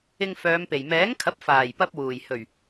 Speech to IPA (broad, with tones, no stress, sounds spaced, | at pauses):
ɪ˧ ŋ f œː˨˧ m p e˨˩ j m ɛː˨˥ ŋ kʰ ɐ˨˥ p̚ f aː˨˩ j p ɐ˧ p̚ w uː˨˩ j h ɵ˨˩ ɥ